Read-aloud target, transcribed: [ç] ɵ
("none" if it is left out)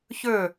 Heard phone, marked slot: ç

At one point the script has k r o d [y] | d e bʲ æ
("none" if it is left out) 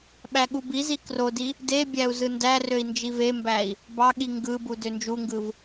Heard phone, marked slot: i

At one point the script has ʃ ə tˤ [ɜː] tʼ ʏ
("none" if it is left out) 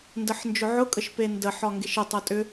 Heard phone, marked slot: ɜ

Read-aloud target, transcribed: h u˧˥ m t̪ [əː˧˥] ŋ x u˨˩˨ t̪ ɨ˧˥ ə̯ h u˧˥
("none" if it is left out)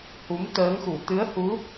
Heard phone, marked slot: əː˧˥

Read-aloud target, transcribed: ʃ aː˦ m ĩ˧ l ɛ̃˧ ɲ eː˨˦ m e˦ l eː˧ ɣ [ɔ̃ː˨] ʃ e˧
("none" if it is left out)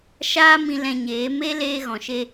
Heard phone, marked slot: ɔ̃˨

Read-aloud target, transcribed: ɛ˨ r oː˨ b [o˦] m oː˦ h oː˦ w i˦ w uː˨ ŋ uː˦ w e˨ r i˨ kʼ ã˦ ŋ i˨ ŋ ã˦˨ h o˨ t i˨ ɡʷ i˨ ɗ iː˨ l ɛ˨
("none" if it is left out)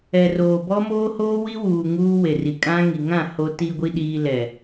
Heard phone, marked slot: ɔ˦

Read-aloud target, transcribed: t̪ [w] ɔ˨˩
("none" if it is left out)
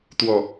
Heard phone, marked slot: w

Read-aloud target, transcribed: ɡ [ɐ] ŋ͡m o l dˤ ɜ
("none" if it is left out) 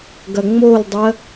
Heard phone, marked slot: ɐ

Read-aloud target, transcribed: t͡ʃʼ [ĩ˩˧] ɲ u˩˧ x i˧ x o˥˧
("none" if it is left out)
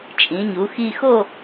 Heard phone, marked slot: ĩ˩˧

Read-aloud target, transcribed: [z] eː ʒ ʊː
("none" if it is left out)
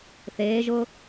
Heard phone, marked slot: θ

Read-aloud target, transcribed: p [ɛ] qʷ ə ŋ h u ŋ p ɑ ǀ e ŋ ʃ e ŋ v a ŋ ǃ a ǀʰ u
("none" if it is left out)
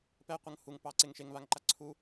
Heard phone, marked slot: ɛ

